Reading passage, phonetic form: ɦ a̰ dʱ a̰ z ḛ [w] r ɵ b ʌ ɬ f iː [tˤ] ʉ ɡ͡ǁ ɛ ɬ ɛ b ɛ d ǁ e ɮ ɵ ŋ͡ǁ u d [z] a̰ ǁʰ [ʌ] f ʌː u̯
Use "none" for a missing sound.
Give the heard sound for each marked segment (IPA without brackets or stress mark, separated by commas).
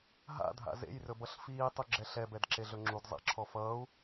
j, tˤ, zˤ, ɔ